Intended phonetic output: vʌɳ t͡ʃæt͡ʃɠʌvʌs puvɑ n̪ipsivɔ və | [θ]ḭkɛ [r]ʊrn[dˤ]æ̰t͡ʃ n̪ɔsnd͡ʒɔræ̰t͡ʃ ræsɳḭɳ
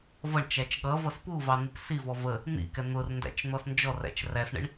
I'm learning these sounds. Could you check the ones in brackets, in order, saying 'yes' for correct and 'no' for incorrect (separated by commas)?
no, no, no